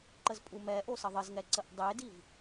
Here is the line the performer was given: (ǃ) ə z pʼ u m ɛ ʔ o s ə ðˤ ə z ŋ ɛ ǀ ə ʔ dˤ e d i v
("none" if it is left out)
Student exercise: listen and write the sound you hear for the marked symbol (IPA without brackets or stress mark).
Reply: ǃ